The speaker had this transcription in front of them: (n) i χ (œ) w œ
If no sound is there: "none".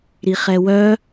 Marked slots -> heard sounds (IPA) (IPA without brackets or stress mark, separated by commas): ɾ, ɛ